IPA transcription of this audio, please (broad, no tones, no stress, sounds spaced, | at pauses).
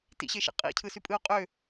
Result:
t ḭ ɕ e ʃ ḛ qʼ ḭ cʰ ɯ s y pʼ ɯ o̯ qʼ ø